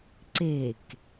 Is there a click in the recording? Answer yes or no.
yes